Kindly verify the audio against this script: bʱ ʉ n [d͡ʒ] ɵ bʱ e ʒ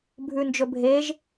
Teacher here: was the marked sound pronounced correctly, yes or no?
yes